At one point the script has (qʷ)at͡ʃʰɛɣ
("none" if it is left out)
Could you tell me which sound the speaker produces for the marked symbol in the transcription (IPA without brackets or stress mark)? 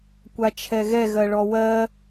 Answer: kʷ